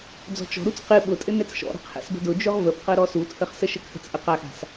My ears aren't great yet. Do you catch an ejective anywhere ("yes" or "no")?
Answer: yes